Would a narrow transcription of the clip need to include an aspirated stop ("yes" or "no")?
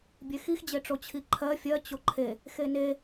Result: yes